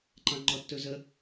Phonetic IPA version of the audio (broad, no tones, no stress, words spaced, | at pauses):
ǃɑ̃ŋ͡ǃɔtːɵzə